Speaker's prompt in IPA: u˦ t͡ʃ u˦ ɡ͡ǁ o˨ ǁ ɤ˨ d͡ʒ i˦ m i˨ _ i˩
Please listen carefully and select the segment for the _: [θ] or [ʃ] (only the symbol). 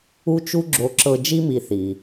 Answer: θ